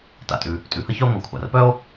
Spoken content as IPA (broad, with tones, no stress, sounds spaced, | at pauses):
t a̰˩ tʼ ʉ˩ | tʼ ʉ˩ h ə˥ ç œ˥ o̯ ŋʷ a˩ kʷʰ a̰˩ r p œ˥ o̯